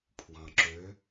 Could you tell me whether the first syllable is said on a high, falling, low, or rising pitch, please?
low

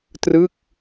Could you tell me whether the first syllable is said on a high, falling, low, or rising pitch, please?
falling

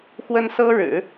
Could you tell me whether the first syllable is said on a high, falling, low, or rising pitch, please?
high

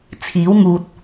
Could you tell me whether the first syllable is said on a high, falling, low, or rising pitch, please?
rising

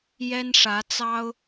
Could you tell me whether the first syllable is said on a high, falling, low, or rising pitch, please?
high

